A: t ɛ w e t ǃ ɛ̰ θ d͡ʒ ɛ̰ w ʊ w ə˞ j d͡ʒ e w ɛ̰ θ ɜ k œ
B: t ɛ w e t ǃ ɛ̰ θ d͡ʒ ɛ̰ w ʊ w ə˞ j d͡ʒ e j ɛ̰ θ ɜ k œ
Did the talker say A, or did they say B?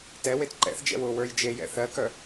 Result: B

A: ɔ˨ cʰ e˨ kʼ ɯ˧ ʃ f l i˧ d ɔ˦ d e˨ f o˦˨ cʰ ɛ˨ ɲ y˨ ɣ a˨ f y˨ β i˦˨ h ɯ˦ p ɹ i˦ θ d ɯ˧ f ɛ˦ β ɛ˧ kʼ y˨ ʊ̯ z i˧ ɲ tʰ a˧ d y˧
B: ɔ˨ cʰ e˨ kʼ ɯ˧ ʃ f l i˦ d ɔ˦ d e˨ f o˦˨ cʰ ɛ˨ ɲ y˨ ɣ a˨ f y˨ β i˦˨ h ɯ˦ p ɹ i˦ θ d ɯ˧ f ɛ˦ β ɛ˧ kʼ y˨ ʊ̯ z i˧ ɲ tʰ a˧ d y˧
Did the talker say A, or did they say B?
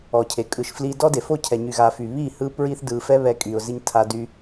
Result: A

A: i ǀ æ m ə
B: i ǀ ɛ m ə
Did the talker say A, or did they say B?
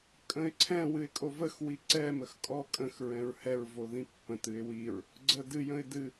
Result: B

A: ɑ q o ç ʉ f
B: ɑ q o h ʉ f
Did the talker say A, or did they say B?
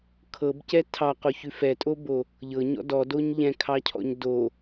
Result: A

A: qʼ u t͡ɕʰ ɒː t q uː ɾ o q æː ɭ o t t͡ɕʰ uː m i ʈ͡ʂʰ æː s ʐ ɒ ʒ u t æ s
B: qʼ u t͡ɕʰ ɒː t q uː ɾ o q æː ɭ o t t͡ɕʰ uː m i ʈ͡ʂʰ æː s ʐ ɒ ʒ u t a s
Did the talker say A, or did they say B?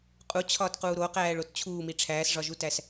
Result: A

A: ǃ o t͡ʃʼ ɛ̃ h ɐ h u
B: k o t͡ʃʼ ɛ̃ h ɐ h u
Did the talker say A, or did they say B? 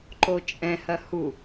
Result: A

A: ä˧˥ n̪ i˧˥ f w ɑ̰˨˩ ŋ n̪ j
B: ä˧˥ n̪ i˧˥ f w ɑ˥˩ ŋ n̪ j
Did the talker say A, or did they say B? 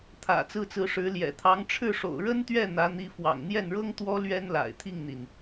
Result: A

